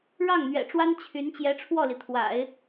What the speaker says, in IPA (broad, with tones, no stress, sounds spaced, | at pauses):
ɻ ɑ˥˩ ŋ n̪ ɥ ɛ̰˨˩ ʈ͡ʂ w a˥ n t͡ɕʰ y˧˥ n t͡ɕ j ɛ˧˥ ʈ͡ʂʰ w ɔ˥˩ l i˩ t̪ʰ w a̰˨˩˦ ɪ̯